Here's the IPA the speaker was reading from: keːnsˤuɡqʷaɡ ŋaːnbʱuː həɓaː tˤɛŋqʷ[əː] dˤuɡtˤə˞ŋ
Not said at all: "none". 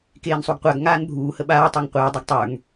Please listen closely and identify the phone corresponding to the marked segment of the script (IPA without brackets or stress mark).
əː